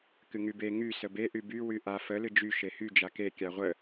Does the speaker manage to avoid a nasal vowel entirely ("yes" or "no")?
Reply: yes